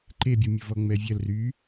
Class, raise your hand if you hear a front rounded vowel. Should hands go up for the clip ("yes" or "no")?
yes